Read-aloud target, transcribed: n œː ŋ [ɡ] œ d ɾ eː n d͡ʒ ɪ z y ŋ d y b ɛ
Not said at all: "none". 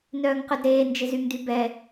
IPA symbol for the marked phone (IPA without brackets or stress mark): q